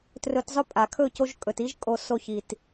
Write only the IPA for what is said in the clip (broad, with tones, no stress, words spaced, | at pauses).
trɵ˧tzˤɵ˦pʼa˨ kʰɵ˦˨co˧ʒkʼɵ˨t i˦ʒkʼo˧ so˧çi˨t